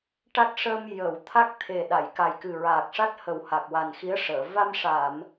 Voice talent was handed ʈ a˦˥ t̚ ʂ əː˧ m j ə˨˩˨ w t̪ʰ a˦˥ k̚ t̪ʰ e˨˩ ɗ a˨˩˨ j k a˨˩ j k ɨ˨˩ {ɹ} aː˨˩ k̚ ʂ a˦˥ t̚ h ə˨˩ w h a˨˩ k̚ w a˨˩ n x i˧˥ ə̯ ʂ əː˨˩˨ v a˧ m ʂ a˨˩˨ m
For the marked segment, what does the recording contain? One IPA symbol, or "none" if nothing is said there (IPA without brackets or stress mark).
ɹ